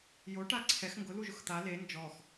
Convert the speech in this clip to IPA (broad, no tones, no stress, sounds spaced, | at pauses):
j o ʈ a ǀʰ ɛ x ŋ ɡ ʊ l u ʒ ʊ x t̪ a l e n d͡ʒ ɔ x